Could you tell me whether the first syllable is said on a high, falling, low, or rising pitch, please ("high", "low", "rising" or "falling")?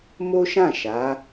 high